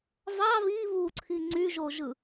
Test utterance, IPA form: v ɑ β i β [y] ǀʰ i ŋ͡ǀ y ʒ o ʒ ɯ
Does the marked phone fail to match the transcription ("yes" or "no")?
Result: yes